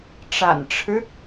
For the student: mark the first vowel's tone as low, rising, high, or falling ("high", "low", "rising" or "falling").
low